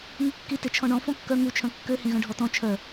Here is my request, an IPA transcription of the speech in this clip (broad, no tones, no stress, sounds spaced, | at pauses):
ŋ u kː i t e t͡ʃʰ ɔ̃ ɳ ɔ̃ f ɔ̃ kː œ ŋ u t͡ʃʰ œ̃ kː ø h ĩ ɣ œ̃ ɖʱ ɔ t ɔ̃ t͡ʃʰ œ